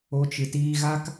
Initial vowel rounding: rounded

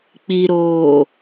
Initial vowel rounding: unrounded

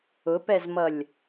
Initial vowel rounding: rounded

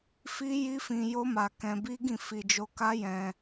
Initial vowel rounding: unrounded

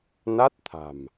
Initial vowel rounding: unrounded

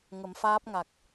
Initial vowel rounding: unrounded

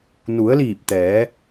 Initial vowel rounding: rounded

